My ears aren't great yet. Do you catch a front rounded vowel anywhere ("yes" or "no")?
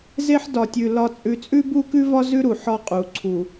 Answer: no